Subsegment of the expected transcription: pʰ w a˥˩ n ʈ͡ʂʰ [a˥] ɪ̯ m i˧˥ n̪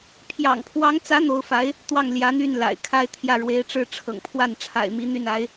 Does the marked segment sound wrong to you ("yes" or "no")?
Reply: yes